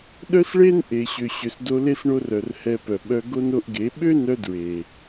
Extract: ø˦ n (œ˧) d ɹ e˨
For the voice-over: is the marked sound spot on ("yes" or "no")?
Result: yes